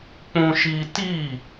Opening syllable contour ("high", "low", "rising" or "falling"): high